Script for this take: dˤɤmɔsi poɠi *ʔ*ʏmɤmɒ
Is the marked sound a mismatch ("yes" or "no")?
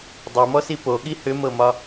yes